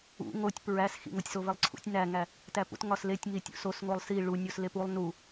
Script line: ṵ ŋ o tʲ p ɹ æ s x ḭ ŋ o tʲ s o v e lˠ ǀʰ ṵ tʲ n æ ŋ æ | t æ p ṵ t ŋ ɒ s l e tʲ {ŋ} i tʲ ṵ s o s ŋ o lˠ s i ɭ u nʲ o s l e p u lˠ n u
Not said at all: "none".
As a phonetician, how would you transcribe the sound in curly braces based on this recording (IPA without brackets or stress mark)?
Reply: ŋ